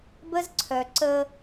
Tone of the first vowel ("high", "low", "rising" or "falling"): high